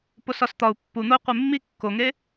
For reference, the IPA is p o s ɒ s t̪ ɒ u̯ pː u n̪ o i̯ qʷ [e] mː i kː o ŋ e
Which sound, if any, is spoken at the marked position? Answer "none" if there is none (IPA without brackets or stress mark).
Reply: e